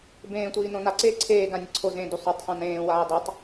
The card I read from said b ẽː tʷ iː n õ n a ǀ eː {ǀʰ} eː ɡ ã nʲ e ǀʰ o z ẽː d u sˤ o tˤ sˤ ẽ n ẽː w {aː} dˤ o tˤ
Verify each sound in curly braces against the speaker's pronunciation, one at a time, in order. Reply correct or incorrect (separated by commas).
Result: correct, correct